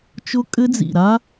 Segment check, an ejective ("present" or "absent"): present